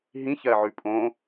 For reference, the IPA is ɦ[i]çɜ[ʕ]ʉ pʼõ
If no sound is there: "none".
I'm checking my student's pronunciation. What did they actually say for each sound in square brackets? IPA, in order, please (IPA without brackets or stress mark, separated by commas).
ĩ, ʕ